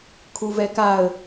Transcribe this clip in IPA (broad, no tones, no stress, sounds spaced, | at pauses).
kʰ u v ɛ k a ə̯